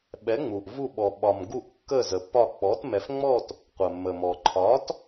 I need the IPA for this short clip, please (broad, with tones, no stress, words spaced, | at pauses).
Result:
ɓɛ˩˥ŋ͡mu˩ʔvu˧˩ɓɔ˩ ɓɒ˩mɡu˧˩ʔ kːə˧˩ zə˩pːɒ˧˩k͡pɔ˩˥t mɛ˩fŋ͡mɔ˧˩t | qʷə˩mːə˩mɔ˩ ǃʰɒ˩˥t